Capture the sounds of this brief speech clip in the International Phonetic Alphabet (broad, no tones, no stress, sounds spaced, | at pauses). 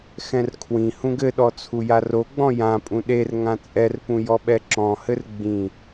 x ɛ̃ r kʰ w ĩ h ũ ɡ ɘ ɗ ɔ t͡sʰ u j a r o ɡ͡b ɔ̃ j ã pʼ ũ ɗ e r ŋ ã t͡sʼ ɛ r p ũ j ɔ ɓ ɛ ǁ ɔ̃ h ɘ r ɡ͡b ĩ